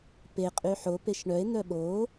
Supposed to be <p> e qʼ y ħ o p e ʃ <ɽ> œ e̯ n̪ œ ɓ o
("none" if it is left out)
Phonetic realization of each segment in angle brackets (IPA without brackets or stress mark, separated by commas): p, ɳ